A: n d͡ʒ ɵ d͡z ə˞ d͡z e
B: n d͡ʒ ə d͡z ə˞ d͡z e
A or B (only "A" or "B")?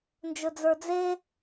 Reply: A